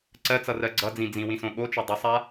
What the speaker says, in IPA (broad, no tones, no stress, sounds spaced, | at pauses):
ǀ ɜ t͡s ʌ r ɜ ɡ͡ǀ ʌ d͡z ĩ d͡z ĩ w ĩ s õ ɠ o t͡ʃ ɵ dˤ ʌ sˤ a